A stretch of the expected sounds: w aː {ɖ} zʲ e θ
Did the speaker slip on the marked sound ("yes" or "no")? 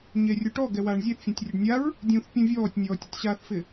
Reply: yes